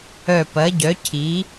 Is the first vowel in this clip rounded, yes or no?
yes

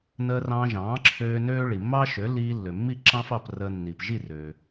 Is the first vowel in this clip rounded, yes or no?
no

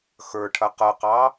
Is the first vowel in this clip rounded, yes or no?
no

